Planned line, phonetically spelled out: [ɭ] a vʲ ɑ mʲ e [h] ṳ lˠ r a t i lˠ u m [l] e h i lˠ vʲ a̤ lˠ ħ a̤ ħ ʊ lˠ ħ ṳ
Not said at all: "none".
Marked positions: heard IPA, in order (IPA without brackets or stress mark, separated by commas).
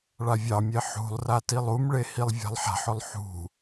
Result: ɭ, ħ, ɭ